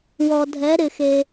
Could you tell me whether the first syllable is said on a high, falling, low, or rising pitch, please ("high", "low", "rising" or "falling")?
low